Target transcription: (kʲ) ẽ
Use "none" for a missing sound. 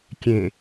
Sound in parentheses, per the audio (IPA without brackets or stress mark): kʲ